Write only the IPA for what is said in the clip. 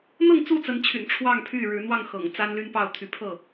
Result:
n̪ɤ˥˨ŋt͡su˥˨t͡sə˨˦nt͡ɕʰy̰˨˩n ʈ͡ʂʰwɑ˥˨ŋpʰy˥˨ɻɻ̩˨˦n̪wɑ˥˨ŋ xɤ̰˨˩ŋ t͡sa˦nly˦npɑ˥˨ʊ̯ t̪ʰy˨˦pʰɤ˥˨

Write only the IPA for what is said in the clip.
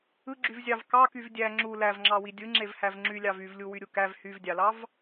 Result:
ɯɡ͡ǁyvzʲɑv kɑkyv dʲæ ŋ͡ǁu lævŋ͡ǁɑwi dʲɯŋ͡ǁevhæv ŋ͡ǁylʲɑv yvlʲuwyɾʲu kæv hyvdʲɑlɑv

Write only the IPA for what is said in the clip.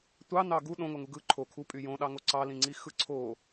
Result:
tʷɑnɑ ɡu ɗõŋoŋu ɡɯ ǃʰo kʰupʼy jõɗɑŋo ǀɑlĩŋ͡ǀixɯ ǀʰo

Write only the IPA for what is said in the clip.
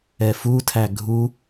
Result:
ɛfutʰæ ɡʱu

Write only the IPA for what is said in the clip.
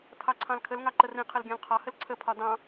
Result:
tʰɑǀʰɑ̃lkʰəl ŋɑǃərĩqʰəl ɡʲɑ̃lqʰɒhəl ǀʰəpʰɒ dɑ̃

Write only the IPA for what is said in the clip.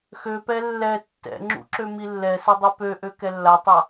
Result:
xøpɛ lːɛ tːɛ̰ ŋ͡ǁṵǁø milːɛsɛ dˤipøʔø kɛlːatˤa

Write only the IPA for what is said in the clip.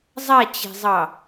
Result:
zˤat͡ɕe̤zˤɑ

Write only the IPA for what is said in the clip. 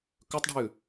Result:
kɵtˤɖʱʉ

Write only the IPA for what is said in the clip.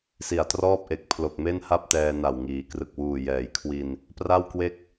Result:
si˨˩a̯trɔː˥˩p̚ʔe˨˩k̚ pʰlo˨˩k̚me˥˩nha˥˩p̚ tɛː˧na˨˩wŋiː˩˦ krɯ˨˩k̚wuː˨˩ jɛː˩˦jkʰwi˧n | pra˥˩wkwe˥˩k̚

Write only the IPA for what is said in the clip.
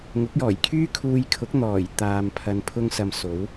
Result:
ŋʊ˨˥k̚jɔː˨˩jkʰyː˥kʰuː˧j kʰʊ˨˥k̚n̪ɔː˨˩j t̪aː˨mpʰɐ˨˧n pʰʊ˧ŋsɐ˨m so˨˥w

